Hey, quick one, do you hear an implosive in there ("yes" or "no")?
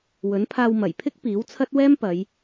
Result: no